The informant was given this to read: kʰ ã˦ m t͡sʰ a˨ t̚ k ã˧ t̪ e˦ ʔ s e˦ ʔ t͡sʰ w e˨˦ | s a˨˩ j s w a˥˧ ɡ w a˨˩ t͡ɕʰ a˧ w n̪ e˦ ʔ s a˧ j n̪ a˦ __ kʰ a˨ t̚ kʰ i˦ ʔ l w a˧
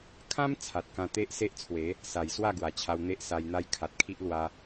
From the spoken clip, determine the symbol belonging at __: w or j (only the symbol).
j